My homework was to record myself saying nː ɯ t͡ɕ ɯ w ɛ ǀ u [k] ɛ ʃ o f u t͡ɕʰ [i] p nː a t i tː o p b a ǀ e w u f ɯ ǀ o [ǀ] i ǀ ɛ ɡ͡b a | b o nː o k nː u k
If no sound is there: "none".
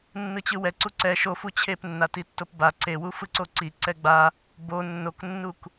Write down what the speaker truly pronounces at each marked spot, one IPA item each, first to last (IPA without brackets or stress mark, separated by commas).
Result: ǀ, e, ǀ